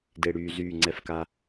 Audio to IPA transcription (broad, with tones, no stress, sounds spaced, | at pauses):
d e˨ ɽ yː˨ z yː˦˨ ŋ͡ǀ ɛ˦ f k a˦